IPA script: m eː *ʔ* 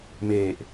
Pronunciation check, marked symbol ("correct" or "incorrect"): correct